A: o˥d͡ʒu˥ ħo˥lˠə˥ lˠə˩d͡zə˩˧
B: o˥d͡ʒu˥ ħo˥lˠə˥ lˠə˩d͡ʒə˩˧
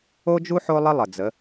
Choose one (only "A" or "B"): A